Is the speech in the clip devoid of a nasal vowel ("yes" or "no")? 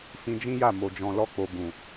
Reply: no